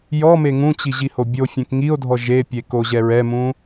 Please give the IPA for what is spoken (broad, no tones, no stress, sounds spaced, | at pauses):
j ɔ m e ŋ ũ t͡ɕ i ʑ i h o bʲ o fʲ ẽ k ŋ i o̯ dʱ ɔ ʒ e pʲ e k o ʑ ɛ ɹ ɛ m ũ